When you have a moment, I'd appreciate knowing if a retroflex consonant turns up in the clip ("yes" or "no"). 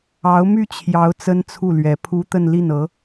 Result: no